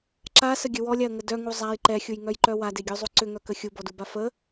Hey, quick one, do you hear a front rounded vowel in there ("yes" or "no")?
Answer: yes